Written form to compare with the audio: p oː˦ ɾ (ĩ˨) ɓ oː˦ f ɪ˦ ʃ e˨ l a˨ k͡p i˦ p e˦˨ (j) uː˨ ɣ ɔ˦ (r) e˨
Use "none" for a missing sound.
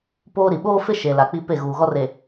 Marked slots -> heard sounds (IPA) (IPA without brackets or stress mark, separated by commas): i˨, ɣ, r